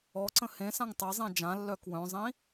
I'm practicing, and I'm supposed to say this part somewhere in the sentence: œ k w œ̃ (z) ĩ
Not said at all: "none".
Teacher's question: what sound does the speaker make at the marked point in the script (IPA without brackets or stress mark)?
zˤ